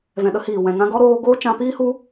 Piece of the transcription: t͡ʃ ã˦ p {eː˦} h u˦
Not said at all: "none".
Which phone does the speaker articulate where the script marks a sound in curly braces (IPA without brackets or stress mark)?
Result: iː˦